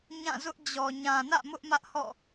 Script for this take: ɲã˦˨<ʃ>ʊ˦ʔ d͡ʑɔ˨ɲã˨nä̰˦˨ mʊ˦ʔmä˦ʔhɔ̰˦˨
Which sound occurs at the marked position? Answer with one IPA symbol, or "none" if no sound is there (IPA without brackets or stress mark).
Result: z